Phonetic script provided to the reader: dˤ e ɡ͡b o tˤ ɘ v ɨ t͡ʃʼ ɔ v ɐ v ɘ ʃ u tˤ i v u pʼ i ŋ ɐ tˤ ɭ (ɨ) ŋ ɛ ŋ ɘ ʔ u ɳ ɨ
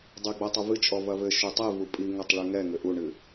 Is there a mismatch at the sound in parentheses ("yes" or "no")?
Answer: no